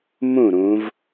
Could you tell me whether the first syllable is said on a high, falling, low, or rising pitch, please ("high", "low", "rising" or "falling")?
falling